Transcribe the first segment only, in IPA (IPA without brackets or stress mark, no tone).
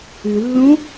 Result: ʉ